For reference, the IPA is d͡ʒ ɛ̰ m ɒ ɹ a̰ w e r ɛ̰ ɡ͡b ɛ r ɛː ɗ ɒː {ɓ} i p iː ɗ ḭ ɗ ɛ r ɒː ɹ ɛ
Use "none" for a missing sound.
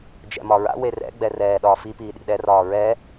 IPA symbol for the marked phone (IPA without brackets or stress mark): f